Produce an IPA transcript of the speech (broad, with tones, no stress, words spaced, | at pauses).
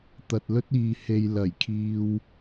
t̪ɐ˨t̚lɵ˥t̚iː˨ he˨j lɐ˨˩jkʰiː˧w